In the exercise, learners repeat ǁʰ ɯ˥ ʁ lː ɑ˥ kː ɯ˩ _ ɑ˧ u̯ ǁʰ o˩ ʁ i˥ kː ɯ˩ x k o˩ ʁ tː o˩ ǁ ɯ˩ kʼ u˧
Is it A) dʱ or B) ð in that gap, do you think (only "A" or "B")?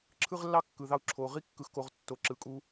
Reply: B